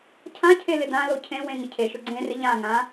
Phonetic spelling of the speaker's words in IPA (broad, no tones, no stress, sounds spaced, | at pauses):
cʰ ã cʰ e l ɪ d ã l o cʰ ẽ w ẽ ŋ ɪ cʰ e ʃ ʊ ɡ͡ǀ ẽ r ɪ ʎ ã ŋ ã